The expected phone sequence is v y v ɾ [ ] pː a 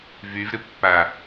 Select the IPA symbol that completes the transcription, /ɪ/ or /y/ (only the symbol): ɪ